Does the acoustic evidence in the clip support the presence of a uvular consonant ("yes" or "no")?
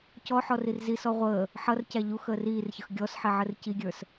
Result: yes